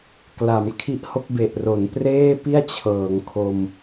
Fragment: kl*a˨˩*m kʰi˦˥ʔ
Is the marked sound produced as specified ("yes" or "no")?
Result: no